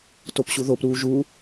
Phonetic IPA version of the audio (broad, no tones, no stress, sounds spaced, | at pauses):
t o p ɕ u ð o p ɾ uː ʒ u